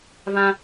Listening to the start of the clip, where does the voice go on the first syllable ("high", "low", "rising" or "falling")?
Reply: high